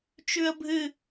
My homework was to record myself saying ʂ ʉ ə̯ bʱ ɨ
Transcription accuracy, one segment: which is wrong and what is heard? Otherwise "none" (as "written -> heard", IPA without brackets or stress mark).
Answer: ʂ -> t͡ʃ